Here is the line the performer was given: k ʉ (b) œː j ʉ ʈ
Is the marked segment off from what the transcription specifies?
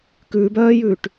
no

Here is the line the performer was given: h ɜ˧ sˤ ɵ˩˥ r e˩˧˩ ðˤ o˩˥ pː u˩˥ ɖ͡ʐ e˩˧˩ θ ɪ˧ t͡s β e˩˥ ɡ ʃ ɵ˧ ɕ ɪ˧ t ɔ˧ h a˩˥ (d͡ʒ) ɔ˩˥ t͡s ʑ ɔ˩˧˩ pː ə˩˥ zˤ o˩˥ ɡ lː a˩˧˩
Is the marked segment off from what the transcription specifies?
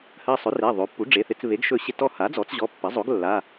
yes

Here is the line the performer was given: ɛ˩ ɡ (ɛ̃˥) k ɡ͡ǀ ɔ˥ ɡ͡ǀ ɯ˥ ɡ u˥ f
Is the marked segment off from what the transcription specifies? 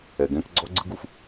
no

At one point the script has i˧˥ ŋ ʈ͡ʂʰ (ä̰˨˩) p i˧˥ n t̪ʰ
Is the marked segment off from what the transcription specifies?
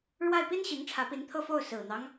yes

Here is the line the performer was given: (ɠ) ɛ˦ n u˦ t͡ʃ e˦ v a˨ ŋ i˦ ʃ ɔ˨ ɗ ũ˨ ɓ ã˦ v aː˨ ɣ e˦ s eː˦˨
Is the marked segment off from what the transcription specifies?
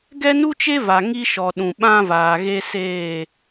yes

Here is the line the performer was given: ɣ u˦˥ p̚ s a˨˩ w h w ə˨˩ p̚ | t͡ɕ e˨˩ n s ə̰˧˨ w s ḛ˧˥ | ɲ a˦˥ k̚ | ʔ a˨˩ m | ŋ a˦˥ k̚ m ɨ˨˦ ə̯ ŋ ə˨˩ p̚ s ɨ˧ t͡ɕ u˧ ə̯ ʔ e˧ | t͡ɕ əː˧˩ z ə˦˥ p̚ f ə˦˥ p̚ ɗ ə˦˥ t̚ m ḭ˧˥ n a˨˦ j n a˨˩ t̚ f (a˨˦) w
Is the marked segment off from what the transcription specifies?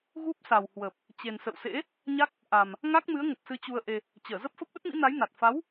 no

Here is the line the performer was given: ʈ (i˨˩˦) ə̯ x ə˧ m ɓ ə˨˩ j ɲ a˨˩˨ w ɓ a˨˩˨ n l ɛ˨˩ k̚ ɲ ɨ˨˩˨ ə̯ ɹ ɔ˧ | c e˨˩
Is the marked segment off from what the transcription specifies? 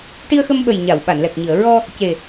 yes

